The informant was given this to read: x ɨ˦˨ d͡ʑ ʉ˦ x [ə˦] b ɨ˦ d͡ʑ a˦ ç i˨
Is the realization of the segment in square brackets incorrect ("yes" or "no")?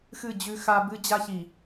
yes